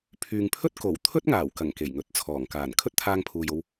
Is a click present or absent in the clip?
absent